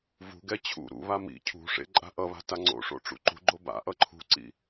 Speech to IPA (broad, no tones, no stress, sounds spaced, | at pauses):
v ṳ ɡ ɛ t͡ɕʰ ṵ ɾ ṵ β a m ḭ cʰ ṳ ʂ ḛ ǃʼ a̤ ʔ ʌ β a̤ t a ŋ͡ǀ o̰ ʂ o̰ ʈ͡ʂ ṵ ǃ ṳ ɡ͡ǃ o b a̰ ʔ ʌ ǃʰ ṳ ǀ ḭ